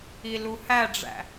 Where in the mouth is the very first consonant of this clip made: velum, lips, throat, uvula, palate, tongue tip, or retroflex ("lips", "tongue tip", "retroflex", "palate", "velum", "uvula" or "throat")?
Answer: tongue tip